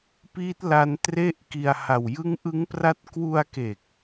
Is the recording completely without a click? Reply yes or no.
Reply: yes